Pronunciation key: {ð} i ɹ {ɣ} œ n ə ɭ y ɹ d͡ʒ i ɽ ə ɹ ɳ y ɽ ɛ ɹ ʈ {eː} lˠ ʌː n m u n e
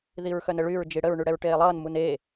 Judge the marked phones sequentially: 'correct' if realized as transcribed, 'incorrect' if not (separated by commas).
correct, incorrect, correct